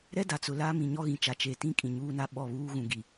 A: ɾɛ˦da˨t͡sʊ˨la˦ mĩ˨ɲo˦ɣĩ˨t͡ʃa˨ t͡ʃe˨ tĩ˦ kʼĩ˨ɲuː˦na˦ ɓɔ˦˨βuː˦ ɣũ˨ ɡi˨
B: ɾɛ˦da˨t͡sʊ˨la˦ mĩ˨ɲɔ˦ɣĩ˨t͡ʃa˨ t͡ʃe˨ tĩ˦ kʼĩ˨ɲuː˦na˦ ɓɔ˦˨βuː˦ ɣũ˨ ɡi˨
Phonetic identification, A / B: B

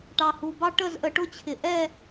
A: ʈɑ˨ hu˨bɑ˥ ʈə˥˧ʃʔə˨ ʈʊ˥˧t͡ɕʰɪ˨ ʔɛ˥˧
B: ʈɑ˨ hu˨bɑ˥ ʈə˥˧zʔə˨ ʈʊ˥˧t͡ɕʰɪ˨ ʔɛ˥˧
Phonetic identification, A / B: B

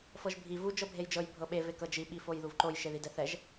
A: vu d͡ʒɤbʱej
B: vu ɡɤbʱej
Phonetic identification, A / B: A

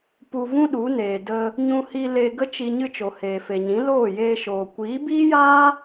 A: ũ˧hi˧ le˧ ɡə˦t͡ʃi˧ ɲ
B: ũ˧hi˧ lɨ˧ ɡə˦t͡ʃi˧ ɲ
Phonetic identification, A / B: A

